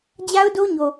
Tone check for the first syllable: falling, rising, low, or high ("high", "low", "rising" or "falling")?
high